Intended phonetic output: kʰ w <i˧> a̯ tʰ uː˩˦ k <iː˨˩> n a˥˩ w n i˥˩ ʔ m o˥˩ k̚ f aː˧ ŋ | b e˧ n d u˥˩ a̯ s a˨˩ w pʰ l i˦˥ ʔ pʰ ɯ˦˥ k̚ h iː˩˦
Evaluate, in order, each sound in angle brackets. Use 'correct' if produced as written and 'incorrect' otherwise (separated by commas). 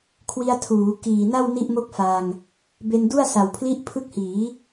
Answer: correct, correct